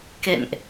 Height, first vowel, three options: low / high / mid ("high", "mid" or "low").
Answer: mid